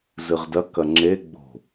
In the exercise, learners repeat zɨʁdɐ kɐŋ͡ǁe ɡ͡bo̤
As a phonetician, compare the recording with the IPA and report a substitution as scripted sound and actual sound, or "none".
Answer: none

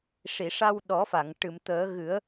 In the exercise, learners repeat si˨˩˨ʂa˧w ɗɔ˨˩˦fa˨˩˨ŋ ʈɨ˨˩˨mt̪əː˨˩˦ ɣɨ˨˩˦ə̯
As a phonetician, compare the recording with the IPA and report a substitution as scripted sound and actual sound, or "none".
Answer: s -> ʂ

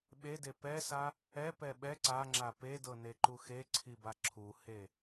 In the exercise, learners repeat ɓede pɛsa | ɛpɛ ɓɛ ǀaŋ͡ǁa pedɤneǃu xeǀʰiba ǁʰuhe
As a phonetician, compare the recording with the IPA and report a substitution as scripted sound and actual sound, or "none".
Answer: none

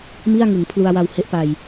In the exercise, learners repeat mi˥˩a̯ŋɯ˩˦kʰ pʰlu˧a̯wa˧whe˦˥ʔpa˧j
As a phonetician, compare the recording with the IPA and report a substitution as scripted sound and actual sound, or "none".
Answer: kʰ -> ŋ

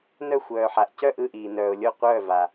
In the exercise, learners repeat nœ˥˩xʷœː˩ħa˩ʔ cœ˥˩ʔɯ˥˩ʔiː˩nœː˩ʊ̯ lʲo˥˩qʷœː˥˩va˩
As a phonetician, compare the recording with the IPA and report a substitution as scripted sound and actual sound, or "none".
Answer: none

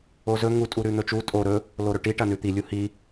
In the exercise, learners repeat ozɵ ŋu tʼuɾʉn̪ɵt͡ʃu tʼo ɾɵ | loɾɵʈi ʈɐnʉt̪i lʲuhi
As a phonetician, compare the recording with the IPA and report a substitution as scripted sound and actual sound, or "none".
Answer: none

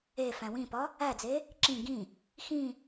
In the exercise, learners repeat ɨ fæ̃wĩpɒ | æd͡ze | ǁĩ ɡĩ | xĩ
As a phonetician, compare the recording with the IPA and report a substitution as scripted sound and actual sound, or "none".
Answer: ɨ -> e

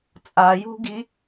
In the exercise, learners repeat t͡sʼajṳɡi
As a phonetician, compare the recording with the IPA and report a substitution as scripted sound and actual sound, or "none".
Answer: none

